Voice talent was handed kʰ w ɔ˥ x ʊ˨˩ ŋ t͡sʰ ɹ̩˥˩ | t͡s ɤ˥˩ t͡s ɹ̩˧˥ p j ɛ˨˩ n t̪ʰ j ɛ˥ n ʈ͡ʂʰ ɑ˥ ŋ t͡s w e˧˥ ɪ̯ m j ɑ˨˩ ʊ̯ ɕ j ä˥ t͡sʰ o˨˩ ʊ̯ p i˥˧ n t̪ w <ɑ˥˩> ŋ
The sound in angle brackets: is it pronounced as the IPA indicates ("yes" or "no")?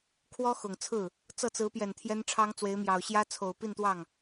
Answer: yes